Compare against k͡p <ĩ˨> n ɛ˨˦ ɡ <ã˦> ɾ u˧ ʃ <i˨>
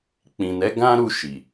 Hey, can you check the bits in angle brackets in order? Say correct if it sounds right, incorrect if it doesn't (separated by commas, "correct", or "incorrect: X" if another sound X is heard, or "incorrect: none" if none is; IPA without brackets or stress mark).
correct, correct, correct